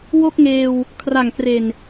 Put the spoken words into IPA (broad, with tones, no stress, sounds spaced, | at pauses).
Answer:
w o˥˩ k̚ ŋ eː˧ w | kʰ r a˨˩ ŋ k r e˨˩ n